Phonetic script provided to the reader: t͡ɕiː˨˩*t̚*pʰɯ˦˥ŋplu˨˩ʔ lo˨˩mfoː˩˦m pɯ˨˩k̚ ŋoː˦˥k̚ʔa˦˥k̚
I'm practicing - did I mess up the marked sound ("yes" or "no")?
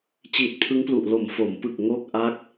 no